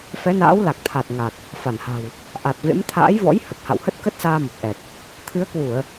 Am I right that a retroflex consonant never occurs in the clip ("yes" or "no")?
yes